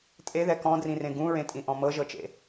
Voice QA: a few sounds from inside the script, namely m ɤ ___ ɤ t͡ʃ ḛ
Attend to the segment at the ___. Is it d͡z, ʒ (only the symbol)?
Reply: ʒ